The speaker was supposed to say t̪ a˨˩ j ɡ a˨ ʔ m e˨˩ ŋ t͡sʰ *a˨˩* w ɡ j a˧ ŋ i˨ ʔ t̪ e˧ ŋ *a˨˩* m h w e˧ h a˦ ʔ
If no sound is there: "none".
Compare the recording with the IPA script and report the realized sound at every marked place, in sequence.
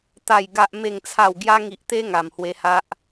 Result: a˨˩, a˨˩

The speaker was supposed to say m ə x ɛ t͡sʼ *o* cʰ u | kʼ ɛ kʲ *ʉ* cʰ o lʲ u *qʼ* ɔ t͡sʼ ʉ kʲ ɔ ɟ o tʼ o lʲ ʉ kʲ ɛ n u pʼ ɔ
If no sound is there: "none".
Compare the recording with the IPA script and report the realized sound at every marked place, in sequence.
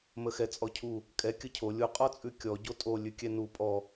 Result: ɔ, ə, qʼ

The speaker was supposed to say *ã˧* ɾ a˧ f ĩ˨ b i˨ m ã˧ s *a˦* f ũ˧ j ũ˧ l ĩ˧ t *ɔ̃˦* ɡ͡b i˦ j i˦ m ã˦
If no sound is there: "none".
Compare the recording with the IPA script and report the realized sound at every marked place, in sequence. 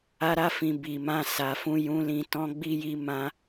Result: a˧, a˨, ɔ̃˦

